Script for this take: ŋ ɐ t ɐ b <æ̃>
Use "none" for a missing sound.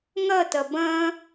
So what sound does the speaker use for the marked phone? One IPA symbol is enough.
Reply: ɐ̃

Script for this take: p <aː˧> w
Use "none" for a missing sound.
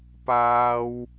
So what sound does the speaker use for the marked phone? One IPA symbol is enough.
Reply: aː˥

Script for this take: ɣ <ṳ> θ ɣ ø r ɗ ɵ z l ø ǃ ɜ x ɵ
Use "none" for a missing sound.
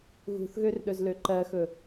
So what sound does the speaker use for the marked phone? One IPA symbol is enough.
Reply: ṳ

